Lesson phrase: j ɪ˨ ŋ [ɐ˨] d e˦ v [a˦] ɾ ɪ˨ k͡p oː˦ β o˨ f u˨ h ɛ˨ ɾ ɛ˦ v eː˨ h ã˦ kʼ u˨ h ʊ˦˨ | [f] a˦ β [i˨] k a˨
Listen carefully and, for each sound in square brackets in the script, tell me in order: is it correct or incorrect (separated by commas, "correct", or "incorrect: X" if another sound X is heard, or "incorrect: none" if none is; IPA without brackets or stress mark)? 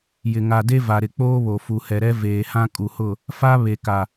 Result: incorrect: a˨, incorrect: a˨, correct, incorrect: e˨